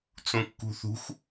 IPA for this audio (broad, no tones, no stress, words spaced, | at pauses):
t͡sũkːṳθṳx